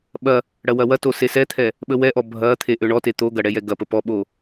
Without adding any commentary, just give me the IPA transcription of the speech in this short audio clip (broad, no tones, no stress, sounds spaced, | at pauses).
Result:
ɓ ɐ | ɽ ɐ w ɐ w ɐ t o s e s ɛ t̪ʰ ɛ | ɓ ə w ɛ ʔ ɔ bʱ ɐ t̪ʰ e ʔ ø ɳ ɔ t e t̪ o ɡ ɐ ɽ ɛ j ɛ ɡ ɐ p ə p ɔ ɓ o